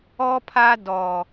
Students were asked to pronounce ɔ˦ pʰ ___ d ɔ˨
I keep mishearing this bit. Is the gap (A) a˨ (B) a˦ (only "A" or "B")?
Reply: B